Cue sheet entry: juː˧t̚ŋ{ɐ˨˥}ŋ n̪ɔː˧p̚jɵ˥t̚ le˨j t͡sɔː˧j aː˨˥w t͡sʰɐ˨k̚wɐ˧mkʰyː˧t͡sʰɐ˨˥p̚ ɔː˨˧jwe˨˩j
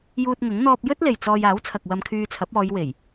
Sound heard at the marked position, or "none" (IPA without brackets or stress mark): ɐ˨˥